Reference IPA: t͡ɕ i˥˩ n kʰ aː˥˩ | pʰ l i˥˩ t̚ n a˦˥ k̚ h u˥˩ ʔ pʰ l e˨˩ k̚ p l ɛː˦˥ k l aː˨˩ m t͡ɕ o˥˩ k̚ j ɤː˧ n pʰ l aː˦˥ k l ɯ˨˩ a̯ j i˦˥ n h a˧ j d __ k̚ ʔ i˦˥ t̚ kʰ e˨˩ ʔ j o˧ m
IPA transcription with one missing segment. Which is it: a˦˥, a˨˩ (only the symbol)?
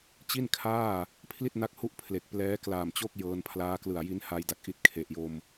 a˨˩